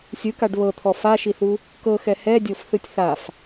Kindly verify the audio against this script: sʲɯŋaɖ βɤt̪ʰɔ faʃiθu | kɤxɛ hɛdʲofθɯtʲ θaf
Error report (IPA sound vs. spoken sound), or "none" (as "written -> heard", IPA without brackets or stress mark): ŋ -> k